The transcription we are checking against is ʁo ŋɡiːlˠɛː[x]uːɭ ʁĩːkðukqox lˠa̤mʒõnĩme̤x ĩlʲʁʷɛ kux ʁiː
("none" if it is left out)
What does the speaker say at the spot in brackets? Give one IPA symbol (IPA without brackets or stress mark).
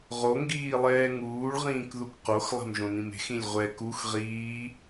ŋ